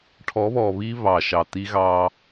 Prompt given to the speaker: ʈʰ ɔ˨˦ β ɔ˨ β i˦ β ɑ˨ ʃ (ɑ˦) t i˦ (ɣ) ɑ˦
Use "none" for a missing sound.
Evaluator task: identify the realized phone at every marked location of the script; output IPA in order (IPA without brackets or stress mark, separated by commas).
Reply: ɑ˨, ɣ